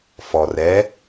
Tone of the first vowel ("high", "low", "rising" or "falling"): low